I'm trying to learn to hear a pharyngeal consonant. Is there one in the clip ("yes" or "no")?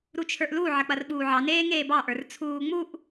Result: yes